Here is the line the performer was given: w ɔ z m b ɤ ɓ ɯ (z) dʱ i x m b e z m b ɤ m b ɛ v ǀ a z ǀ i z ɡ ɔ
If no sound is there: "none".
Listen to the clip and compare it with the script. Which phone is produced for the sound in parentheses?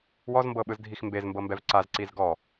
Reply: z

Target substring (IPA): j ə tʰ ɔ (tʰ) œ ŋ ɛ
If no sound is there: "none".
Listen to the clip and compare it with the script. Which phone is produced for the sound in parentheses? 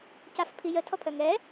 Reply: pʰ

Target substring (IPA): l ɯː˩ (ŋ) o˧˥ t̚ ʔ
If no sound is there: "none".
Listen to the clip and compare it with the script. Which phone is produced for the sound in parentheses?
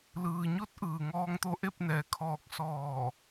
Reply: ɲ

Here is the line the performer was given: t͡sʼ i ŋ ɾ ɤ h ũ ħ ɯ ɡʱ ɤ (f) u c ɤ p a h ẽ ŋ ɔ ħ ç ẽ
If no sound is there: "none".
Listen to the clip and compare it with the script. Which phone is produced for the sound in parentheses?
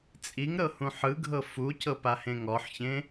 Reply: f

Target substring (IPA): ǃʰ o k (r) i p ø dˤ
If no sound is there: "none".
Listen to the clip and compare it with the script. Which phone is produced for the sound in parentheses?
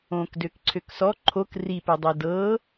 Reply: r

